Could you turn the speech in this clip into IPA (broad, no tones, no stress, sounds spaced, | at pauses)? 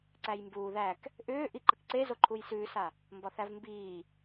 ǀ æ j m b uː ð æ k | ʔ ʏː ʔ i ǃ ə k ǀ e z o ǃʰ u j s ʉː s a | m b ɒ θ æ v m b iː